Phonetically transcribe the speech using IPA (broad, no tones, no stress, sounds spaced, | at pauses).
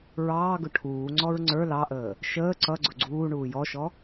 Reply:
ɹ ɑː ɡ ʊ ʈʰ uː ŋ͡ǀ ɔ ɹ ŋ͡ǀ ə˞ l ɑ ʔ əː | ʃ əː ǀ ʌ ɡ͡ǀ ʊ ɡ͡ǀ uː ɳ uː j ɔ ʃ ɔ